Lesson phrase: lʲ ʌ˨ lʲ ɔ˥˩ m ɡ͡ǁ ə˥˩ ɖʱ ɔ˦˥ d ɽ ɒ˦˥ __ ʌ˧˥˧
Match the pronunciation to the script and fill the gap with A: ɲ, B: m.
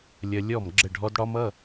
B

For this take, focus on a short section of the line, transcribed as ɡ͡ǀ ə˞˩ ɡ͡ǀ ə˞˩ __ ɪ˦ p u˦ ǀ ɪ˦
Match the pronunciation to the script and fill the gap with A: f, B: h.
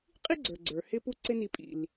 B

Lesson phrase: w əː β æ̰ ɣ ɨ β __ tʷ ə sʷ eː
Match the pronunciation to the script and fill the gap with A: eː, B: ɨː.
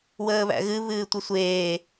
B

